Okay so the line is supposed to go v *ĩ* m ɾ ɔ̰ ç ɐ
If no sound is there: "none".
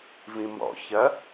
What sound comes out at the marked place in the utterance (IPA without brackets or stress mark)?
ĩ